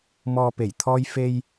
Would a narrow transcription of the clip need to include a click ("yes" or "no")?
no